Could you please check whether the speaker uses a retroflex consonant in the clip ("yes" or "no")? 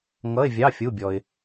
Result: no